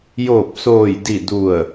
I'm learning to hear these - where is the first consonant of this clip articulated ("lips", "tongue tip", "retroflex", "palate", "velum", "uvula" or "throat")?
palate